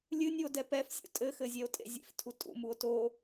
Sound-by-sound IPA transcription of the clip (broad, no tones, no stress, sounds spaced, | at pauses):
lʲ ɨ nʲ u o̯ d ɛ p ɛ f sʲ ṵ tʼ ɘ x ɘ zʲ ɛ o̯ tʼ ḛ zʲ ḛ f tʰ u tʼ ṵ m u o̯ t o